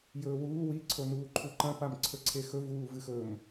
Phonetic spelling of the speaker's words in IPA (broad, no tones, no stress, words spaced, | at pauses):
jɵːwuː wi ǀʰonuːǃʰuǃɐ̃ pamǀʰɵǀʰexɵ vuːvɨxɵm